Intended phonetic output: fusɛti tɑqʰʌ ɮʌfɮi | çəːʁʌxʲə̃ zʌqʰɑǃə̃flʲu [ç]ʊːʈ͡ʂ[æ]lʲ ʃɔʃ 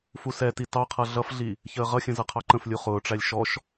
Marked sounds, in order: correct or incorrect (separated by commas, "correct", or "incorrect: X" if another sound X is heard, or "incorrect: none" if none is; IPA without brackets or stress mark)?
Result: incorrect: χ, correct